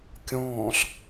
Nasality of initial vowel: nasal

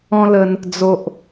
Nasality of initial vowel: nasal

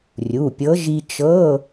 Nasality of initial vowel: oral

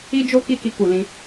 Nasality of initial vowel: oral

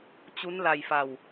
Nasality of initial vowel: oral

